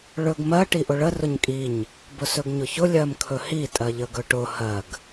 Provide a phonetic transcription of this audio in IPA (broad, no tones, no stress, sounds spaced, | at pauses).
ɭ ɵ ɡ m ɜ ʈ i ʔ ʊ ɭ ə r ʊ ɲ kʼ i ɲ | b ʊ s ɵ ɡ ɲ ʊ ç ʊ lʲ ɜ m kʰ ɵ h i tʼ ɜ ʎ ə ɡ ɵ ʈ ʊ h ɜ ɡ